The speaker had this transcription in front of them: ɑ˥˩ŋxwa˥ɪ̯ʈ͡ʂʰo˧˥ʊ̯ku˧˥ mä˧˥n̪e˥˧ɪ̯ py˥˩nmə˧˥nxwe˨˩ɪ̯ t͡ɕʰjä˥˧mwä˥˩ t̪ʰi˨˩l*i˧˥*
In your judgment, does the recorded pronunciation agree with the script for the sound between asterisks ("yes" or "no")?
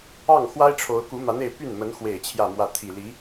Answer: yes